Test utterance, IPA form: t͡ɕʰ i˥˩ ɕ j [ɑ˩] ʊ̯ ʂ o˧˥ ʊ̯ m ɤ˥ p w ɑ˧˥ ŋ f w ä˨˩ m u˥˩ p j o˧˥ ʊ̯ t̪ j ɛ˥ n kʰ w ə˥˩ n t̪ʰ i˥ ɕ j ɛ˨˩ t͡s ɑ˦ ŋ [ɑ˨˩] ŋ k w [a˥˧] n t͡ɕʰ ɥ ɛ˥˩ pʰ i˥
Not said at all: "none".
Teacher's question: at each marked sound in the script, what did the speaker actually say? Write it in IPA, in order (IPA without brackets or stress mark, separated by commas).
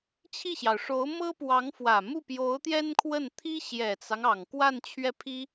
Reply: ɑ˩, ɑ˨˩, a˥˧